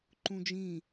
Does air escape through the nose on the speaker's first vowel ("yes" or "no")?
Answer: yes